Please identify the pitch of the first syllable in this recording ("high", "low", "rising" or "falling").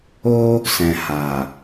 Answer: high